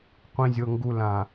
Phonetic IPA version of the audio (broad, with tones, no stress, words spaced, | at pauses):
qʷĩ˨zʲɤ˨ŋɡu˨ lã˨